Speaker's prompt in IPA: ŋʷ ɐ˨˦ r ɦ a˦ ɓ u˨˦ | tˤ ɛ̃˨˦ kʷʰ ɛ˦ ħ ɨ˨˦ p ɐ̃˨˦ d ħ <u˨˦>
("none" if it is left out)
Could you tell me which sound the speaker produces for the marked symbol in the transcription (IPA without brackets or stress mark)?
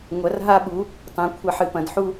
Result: u˦